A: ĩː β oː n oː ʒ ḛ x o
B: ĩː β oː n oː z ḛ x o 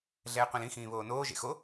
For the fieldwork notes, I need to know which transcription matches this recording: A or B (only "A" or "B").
A